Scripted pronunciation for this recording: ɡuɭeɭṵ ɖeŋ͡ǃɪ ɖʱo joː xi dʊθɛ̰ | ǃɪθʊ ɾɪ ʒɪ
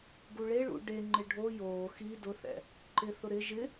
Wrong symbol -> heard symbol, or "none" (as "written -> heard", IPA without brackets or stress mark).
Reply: none